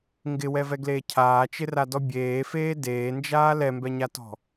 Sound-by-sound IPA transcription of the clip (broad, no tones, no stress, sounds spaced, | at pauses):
ŋ ɡ ɪ w ɛ v ɛ ɡ l eː cʰ aː t͡ʃ ɪ r a d ɔ bʲ eː f eː d eː n d͡ʒ aː l ɛ m b ɛ ɲ a t ɔ̤